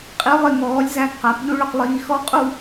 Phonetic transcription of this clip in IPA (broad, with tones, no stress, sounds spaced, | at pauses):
qʼ i˩˥ lˠ ɪ˩˧˩ ŋ ɔː˩˥ lʲ z æ˧ ɡ q æ˨˩˦ p ʎ u˥ ɭ ʊ˧ q lˠ iː˧ x ɔ˥ qʼ u˥˧